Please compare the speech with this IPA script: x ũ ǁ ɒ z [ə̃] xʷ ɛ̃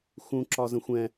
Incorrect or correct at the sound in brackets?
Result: correct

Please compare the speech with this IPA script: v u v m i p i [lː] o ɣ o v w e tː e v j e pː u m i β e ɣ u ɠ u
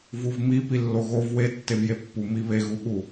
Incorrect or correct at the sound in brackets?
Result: correct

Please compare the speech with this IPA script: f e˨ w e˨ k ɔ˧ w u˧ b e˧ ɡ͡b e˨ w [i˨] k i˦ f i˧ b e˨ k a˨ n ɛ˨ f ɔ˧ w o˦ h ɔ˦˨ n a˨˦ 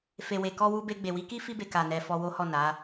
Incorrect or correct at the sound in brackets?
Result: incorrect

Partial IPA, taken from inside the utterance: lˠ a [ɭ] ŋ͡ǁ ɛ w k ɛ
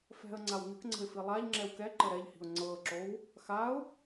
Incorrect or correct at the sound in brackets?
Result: incorrect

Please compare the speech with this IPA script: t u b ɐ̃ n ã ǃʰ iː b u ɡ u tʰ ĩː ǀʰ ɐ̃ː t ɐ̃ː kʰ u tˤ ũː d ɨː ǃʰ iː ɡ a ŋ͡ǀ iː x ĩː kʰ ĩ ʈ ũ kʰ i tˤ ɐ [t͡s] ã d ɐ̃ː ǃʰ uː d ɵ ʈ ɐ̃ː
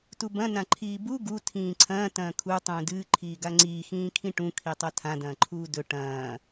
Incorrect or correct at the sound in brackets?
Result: incorrect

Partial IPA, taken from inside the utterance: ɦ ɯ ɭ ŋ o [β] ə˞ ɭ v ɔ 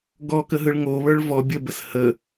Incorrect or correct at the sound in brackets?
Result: correct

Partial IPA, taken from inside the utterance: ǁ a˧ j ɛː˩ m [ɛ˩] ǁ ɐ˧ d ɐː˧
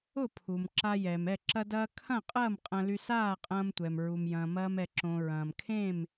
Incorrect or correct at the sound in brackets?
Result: incorrect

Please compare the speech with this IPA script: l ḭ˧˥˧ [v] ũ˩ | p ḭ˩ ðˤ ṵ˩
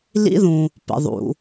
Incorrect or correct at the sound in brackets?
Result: incorrect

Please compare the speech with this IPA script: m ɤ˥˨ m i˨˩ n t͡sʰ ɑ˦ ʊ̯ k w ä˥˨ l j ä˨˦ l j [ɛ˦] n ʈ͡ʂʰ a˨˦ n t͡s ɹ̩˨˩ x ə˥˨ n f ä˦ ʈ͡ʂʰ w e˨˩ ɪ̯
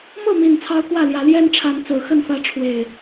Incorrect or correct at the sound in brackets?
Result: correct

